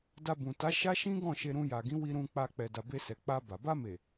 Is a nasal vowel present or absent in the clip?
present